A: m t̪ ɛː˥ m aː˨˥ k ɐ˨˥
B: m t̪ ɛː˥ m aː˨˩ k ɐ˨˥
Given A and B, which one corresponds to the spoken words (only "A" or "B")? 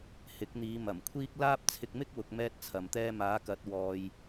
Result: A